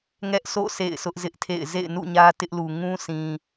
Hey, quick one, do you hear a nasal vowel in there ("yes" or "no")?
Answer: yes